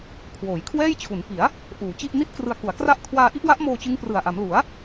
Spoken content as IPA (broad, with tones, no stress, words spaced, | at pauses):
kʰwoː˩˦jkʰwɛː˥˩jt͡ɕʰu˩˦n pi˩˦a̯ | ʔuː˩˦t͡ɕi˥˩ʔ ni˥˩t̚krɯ˧a̯ku˩˦a̯kra˥˩ʔ kʰwaː˧ʔi˥˩ʔwa˦˥ʔmoː˧ t͡ɕɯ˦˥ŋprɯ˨˩a̯ʔa˩˦mlu˩˦a̯